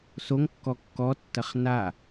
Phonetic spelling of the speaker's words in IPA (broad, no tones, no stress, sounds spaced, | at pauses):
s o ŋ kː ɔ kː ɔ tː ɐ χ n a